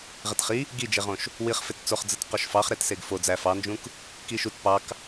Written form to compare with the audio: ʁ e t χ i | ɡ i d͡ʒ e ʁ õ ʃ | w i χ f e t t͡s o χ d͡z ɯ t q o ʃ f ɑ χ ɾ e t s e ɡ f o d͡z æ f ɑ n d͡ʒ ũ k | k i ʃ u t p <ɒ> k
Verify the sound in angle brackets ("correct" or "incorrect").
incorrect